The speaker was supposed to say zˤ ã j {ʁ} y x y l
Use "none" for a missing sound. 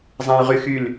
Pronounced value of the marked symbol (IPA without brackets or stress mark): ʁ